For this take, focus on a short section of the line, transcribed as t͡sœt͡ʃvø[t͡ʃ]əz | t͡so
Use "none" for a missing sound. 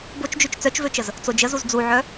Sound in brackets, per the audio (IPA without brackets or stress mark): t͡ʃ